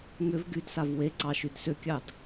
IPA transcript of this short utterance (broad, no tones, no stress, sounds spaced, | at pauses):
ŋ ʏ v ɡ y d s a v w e ǀ ɑ ʃ y d s ʏ kʲ ɑ d